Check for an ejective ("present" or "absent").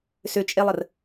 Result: present